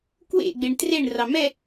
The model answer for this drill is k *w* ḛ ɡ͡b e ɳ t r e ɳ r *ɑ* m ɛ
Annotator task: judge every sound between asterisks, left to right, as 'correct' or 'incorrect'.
correct, correct

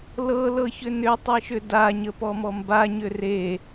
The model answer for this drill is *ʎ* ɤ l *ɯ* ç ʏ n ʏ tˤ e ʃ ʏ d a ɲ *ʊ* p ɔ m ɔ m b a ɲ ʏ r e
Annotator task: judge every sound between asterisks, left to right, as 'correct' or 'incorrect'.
incorrect, incorrect, incorrect

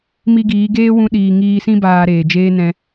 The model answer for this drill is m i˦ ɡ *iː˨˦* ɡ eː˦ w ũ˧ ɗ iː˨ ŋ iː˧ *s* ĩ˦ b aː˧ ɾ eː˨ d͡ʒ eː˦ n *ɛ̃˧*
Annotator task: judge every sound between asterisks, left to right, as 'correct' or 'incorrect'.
correct, correct, correct

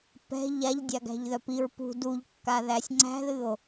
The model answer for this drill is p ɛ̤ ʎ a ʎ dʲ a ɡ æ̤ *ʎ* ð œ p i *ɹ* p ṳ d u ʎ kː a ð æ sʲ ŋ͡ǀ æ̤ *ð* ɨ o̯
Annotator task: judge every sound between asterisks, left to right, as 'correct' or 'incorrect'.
correct, correct, correct

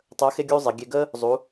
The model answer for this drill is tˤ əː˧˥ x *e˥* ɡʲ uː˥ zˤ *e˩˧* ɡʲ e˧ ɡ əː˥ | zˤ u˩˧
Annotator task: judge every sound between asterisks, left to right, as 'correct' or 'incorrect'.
correct, correct

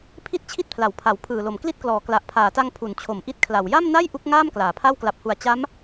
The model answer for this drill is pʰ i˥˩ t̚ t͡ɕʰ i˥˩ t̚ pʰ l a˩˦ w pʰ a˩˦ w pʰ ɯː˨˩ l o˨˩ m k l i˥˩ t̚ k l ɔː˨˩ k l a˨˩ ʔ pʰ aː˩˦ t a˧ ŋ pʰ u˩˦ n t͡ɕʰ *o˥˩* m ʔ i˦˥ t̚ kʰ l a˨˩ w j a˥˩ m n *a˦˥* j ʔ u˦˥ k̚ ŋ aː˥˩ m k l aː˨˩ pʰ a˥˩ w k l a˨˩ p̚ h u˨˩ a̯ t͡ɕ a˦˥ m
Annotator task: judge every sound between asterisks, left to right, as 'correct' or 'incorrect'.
incorrect, incorrect

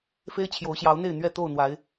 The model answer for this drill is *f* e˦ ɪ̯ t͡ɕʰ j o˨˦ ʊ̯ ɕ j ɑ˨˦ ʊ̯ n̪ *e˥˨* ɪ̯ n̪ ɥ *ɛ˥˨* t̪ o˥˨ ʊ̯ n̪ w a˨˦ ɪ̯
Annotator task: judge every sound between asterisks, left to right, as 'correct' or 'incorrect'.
correct, correct, correct

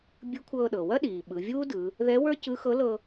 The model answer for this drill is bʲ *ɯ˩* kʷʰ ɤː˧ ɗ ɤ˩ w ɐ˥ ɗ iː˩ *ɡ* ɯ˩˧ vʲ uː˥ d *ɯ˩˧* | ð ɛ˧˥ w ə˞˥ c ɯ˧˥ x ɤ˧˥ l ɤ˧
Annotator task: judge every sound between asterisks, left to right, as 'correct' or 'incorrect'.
incorrect, incorrect, correct

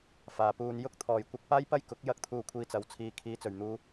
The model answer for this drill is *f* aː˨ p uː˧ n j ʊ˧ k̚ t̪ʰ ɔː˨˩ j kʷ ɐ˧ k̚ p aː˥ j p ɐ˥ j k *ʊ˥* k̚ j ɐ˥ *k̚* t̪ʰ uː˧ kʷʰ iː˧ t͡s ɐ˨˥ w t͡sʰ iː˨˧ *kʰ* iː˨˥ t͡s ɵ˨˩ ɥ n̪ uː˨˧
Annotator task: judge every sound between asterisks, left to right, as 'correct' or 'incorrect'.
correct, incorrect, correct, correct

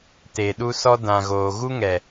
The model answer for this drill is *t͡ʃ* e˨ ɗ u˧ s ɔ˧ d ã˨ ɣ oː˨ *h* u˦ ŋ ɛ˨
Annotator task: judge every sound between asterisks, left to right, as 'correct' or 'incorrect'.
incorrect, incorrect

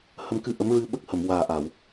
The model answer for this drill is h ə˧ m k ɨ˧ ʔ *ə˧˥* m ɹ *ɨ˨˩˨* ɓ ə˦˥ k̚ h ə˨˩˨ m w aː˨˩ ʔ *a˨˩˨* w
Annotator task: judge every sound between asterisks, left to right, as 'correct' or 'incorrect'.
correct, incorrect, correct

